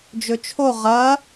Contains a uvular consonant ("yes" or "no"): yes